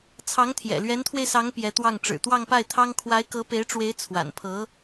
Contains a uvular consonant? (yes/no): no